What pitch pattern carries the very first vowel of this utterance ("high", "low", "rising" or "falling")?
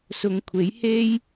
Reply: low